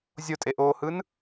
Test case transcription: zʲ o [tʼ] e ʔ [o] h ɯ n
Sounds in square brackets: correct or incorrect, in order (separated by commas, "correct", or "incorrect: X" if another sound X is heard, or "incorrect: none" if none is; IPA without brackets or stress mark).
correct, incorrect: oː